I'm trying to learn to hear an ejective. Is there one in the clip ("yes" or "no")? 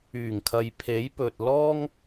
no